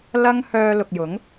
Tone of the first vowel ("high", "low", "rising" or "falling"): high